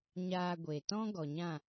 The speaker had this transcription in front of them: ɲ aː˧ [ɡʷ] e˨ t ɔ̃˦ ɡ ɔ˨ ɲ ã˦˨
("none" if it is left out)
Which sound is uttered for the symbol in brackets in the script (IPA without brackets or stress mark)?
ɡʷ